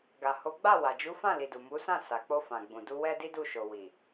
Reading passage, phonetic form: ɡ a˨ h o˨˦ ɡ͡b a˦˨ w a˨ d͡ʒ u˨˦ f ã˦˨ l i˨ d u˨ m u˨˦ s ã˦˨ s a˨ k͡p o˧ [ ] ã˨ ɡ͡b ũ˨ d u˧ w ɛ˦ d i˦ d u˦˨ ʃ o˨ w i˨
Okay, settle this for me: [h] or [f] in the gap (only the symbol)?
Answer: f